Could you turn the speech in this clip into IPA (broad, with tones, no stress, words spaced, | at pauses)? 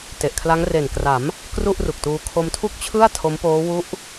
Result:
te˨˩ʔkʰla˦˥ŋ re˨˩nkra˩˦m | kru˥˩ʔru˨˩k̚tuː˧ kʰo˧mtʰu˥˩k̚t͡ɕʰɯ˥˩a̯ tʰo˦˥mpoː˦˥ wu˦˥ʔ